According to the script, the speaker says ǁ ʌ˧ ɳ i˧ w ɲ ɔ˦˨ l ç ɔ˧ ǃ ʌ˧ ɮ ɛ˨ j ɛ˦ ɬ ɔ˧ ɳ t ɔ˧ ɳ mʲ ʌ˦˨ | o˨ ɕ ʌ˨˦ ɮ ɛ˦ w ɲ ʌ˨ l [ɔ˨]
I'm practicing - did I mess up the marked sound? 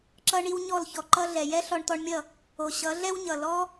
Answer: yes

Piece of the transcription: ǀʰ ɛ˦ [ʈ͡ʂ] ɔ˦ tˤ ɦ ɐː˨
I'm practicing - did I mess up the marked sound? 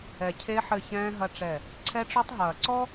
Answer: no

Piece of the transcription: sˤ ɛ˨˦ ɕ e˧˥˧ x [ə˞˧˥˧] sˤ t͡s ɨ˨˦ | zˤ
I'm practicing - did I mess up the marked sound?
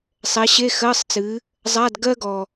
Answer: yes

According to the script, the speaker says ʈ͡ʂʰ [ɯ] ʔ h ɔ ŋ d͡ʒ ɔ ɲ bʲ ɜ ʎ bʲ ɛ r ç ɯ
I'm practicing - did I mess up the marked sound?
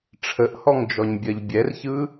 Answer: yes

